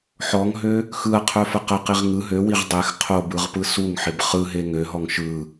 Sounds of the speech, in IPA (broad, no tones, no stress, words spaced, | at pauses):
ħɔŋɦø | xɯɐ̯qʰœfə qəqiʁ ŋɯ ɦøwiʁ dˤex qʰobɯʁpɯ suŋħɪb χɯɦe ŋøɦɔŋ ʃɯ